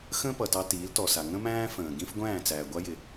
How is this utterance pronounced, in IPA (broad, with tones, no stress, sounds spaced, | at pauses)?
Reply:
x ə̃ː˥ p ʌ˩ t ɑ˧ t iː˩˥ l t ɔ˩ s a˩ ŋ ə̃˥ m æ̃ː˥ f ə̃ː˩ ɡ ĩ˥ f ɡʷ æ̃ː˥˩ t͡s æː˩ ɡʷ a˥ j ɪ˩